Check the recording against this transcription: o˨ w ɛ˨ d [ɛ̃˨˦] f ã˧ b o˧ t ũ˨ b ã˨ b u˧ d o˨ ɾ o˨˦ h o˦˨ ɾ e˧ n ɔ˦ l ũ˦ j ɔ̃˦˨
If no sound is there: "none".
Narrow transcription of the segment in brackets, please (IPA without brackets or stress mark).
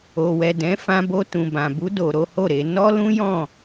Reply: ɛ̃˨˦